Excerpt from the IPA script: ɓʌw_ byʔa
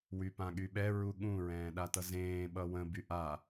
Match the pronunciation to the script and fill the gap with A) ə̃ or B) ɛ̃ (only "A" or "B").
A